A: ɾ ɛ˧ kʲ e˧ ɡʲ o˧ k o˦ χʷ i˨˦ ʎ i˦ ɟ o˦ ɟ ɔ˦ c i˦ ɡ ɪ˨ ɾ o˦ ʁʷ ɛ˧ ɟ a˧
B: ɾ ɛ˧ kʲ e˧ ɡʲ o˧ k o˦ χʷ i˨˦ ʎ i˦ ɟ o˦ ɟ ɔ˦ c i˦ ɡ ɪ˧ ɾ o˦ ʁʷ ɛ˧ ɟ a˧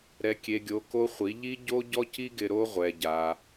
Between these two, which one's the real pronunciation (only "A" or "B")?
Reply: B